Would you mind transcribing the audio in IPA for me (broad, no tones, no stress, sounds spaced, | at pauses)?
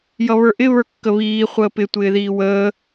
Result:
j ʌ β ə˞ ʔ ɪ β ə˞ kː ə β iː χʷ əː p ɪ tʷ ɪː ð iː w əː